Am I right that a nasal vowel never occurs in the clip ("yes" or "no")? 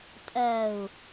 yes